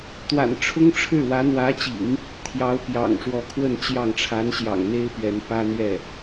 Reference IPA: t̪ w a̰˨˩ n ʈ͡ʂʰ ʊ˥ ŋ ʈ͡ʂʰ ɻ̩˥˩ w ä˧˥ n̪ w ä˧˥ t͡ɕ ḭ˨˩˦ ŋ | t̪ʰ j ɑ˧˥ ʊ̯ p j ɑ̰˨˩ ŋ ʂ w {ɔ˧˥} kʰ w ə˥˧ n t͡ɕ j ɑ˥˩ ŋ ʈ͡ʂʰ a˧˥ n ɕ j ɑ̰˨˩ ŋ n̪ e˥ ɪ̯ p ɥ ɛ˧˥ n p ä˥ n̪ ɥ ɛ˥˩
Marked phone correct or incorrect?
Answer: correct